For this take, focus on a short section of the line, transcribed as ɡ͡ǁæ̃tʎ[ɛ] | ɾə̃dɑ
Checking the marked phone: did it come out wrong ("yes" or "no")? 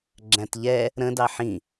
no